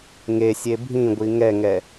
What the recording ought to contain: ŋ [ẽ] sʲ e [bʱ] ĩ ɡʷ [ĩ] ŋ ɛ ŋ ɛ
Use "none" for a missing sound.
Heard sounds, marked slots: e, bʱ, i

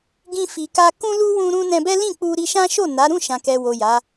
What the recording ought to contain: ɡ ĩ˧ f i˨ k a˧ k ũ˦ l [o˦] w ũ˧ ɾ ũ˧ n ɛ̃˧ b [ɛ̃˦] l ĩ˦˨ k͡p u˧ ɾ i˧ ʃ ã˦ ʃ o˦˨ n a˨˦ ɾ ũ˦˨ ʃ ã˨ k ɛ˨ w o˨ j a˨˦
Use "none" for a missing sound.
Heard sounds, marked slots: u˦, ɛ˦

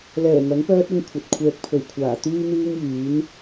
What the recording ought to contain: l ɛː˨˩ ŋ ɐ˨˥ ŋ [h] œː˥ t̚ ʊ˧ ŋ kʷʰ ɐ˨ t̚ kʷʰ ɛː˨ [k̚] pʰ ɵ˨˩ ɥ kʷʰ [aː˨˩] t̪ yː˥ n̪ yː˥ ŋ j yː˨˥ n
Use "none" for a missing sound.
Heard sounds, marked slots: p, k̚, aː˨˩

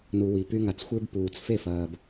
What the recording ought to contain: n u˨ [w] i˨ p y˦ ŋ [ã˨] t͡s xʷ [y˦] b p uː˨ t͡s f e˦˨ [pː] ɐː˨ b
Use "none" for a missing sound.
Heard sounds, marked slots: w, a˨, e˦, f

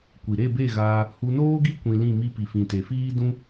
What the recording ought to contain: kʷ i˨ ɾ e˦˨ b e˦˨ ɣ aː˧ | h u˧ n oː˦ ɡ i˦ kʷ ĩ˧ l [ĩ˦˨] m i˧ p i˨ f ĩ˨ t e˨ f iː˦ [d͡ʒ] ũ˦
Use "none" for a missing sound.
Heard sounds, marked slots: ĩ˦˨, d

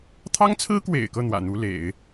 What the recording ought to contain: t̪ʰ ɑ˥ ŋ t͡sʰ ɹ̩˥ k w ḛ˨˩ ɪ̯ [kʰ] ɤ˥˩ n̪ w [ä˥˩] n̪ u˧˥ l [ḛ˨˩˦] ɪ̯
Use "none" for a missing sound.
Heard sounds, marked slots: k, ä̰˨˩, ḛ˨˩˦

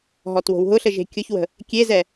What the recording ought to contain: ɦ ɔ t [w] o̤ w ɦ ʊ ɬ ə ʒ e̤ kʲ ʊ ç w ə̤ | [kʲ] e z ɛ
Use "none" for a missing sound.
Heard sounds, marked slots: w, kʲ

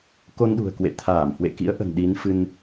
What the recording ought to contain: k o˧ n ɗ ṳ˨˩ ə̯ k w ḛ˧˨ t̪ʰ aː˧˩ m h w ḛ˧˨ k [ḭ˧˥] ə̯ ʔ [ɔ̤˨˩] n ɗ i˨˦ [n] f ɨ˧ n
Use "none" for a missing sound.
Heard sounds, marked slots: ḭ˧˥, ə̤˨˩, n

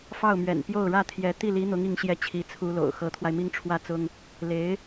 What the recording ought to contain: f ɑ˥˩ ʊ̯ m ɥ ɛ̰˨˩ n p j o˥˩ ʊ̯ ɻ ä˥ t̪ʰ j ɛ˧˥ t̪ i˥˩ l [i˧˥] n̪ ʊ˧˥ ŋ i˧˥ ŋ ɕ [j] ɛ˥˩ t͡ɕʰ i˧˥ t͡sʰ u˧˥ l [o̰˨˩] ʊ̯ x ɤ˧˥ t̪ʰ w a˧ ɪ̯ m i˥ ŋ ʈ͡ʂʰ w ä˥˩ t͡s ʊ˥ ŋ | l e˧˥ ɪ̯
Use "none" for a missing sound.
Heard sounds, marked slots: i˧˥, j, o̰˨˩

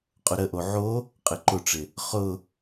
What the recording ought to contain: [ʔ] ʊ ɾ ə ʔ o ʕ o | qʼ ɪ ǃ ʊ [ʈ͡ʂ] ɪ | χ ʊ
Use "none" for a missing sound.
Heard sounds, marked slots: qʼ, ʈ͡ʂ

